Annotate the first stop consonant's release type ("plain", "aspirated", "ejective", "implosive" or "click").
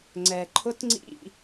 click